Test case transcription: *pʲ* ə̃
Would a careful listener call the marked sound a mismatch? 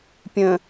no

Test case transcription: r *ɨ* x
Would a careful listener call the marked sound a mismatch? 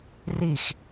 yes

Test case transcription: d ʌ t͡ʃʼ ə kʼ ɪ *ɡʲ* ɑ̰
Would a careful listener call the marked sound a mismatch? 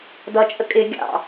no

